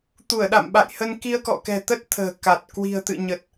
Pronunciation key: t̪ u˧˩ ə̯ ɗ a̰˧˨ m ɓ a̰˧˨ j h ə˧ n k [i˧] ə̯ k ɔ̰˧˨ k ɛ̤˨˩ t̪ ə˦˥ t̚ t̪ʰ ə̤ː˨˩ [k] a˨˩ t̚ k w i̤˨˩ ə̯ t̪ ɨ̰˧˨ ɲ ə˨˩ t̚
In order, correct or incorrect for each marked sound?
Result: correct, correct

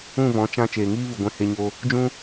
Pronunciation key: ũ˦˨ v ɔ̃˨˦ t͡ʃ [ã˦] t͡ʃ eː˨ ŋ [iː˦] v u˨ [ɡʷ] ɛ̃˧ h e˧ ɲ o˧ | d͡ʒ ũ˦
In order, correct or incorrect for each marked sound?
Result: correct, correct, correct

